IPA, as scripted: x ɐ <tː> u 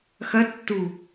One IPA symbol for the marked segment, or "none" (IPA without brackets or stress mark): tː